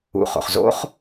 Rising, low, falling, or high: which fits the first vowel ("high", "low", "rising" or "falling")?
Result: low